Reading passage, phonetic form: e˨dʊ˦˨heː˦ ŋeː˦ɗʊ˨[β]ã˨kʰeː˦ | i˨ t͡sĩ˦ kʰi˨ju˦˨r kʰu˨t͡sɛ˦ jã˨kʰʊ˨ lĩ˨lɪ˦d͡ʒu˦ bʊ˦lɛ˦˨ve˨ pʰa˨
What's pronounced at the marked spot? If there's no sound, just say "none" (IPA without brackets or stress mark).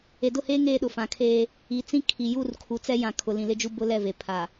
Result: f